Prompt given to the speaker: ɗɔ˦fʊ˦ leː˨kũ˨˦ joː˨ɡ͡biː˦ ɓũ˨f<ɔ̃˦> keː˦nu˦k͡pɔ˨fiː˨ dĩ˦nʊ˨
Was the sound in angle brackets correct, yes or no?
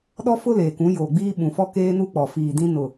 no